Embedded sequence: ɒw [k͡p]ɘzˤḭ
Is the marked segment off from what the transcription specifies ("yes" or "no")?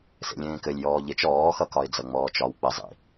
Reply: no